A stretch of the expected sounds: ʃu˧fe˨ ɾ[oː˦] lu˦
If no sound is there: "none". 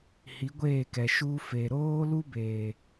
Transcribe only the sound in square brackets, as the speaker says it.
oː˦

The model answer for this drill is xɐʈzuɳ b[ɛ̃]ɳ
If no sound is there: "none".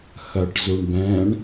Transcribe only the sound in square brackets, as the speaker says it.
ɛ̃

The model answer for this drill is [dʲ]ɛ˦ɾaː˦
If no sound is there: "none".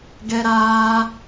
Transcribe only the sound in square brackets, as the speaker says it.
ɡ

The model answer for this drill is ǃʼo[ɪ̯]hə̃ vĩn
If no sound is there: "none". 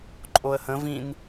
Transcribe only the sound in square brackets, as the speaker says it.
ə̯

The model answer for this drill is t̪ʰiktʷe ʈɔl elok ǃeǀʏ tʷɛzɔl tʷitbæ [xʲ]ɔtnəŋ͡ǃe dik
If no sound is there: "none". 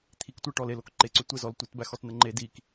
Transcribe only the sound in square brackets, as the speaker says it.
x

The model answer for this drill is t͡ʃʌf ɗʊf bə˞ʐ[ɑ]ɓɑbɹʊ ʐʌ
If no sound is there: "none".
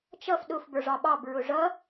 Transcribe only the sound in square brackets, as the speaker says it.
ɑ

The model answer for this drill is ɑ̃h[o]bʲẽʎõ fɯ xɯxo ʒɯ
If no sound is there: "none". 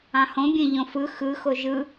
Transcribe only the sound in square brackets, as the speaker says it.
õ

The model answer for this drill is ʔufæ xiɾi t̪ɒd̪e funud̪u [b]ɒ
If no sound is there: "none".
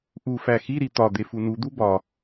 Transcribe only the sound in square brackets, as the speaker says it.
b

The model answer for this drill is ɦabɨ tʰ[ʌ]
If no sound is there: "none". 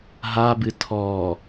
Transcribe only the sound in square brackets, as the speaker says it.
ɔ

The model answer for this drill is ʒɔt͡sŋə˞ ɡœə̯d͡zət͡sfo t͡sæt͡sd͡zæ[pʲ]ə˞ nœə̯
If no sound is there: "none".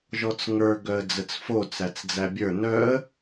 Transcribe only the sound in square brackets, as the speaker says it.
bʲ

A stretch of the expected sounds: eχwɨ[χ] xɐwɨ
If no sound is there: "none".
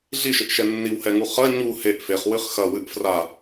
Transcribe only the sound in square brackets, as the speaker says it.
χ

